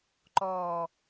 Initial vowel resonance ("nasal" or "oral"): oral